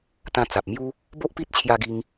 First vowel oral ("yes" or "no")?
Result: no